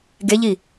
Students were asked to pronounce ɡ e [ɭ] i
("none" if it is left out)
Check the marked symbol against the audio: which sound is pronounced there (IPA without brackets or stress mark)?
ʎ